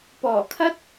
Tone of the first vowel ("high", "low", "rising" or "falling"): low